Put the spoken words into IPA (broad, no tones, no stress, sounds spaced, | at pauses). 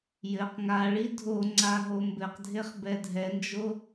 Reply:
j ɘ q ŋ a ɭ i dʱ o ŋ͡ǀ a ɦ o m b ɘ q dʱ e χ b ɛ dʱ ɛ n d͡ʒ o